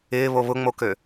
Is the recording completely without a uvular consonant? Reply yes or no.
yes